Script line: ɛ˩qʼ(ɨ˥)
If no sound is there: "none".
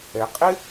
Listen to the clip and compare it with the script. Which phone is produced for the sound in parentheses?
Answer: ɪ˥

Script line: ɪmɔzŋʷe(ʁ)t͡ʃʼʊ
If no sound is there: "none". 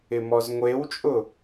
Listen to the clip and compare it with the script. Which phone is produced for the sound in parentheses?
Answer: w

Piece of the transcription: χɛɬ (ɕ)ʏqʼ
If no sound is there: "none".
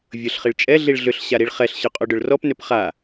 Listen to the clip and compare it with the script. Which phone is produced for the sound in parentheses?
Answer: ɕ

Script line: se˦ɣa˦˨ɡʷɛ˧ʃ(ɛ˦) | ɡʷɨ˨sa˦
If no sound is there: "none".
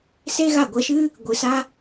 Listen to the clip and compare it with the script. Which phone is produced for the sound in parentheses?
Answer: ɨ˦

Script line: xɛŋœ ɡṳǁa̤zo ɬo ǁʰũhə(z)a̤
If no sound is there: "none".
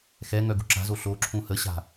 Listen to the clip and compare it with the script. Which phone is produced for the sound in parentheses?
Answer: ɕ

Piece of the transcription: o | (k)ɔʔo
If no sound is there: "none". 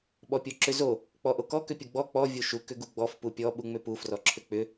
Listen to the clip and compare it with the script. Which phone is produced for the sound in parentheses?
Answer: k͡p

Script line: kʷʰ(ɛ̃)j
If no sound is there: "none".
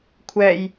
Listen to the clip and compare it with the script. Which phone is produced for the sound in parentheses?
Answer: ɛ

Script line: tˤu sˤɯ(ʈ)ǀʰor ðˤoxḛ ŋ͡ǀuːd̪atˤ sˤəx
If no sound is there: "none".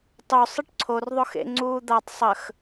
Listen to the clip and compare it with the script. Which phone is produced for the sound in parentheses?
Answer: ʈ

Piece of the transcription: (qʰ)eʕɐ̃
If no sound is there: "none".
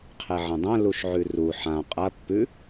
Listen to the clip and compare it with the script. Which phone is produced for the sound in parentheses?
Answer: qʰ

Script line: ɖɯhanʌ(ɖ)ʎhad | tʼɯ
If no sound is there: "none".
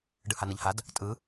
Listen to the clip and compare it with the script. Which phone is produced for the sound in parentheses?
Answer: none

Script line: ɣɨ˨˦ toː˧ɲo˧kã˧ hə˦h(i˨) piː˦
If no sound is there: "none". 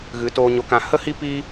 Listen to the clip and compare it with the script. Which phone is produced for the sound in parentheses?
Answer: i˦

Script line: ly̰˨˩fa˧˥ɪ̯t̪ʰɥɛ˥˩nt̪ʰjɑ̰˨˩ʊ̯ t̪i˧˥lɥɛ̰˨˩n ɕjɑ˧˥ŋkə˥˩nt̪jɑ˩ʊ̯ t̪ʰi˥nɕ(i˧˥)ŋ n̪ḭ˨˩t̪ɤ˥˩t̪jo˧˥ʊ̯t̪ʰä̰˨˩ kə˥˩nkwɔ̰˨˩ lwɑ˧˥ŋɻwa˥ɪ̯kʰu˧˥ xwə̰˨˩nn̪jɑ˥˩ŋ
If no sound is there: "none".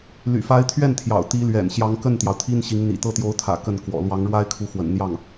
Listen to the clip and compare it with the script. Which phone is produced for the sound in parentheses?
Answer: i˧˥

